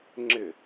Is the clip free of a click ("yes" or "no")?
no